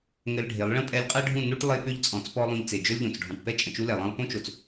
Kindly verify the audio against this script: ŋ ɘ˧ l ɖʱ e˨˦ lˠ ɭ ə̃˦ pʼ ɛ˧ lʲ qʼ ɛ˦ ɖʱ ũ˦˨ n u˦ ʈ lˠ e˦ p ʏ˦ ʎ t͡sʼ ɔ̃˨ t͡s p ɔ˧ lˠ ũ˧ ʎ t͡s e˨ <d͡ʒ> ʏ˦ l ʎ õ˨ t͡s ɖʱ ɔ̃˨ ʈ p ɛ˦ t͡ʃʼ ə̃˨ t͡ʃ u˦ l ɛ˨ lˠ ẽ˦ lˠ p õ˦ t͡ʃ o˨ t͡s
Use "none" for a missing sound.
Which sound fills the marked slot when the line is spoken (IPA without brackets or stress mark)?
d͡ʒ